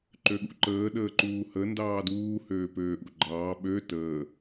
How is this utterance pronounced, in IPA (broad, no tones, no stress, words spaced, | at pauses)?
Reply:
ǃøɠṵǃəː ɗəːǃuːhə ndɑːduː høːpøːʔṵɡ͡ǃɑː ɓø təː